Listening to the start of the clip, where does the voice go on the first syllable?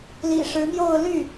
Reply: low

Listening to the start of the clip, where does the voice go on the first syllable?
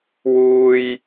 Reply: high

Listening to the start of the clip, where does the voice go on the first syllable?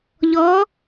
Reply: rising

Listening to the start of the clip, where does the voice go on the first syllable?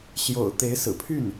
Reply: low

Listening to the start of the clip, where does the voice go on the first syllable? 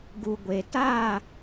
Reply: low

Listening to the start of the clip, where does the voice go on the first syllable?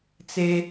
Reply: low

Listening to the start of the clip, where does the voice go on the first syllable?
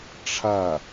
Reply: falling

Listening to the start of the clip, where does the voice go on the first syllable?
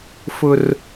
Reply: high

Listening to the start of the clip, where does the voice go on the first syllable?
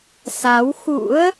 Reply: rising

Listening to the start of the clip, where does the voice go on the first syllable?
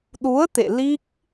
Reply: rising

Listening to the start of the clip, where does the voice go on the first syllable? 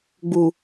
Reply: low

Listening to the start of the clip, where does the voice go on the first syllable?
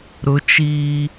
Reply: high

